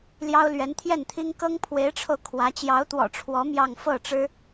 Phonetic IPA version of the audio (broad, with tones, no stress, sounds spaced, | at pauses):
l j ɑ˥ ʊ̯ l ɥ ɛ˧˥ n t̪ʰ j ɛ˥˩ n t̪ʰ i˥ ŋ k ɤ˥ ŋ pʰ w e˧˥ ɪ̯ ʈ͡ʂʰ o˧ ʊ̯ kʰ w ä˧˥ t͡ɕ j ɑ˧˥ ʊ̯ t̪ w ɔ̰˨˩ ʈ͡ʂʰ w ɔ˧˥ m j ɑ˥˧ ŋ f ɤ˥˩ ʈ͡ʂ ɻ̩˥